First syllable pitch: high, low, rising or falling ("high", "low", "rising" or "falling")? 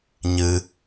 high